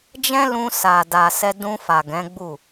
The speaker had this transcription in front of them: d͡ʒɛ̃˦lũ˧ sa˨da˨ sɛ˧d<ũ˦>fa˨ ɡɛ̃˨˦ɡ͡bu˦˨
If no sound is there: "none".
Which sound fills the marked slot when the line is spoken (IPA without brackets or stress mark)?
ũ˧